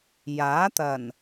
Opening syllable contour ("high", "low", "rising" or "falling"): rising